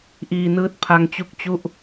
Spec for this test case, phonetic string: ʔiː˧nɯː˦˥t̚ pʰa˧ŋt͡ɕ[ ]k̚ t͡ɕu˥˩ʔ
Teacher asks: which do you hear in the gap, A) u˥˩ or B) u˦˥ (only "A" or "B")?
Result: B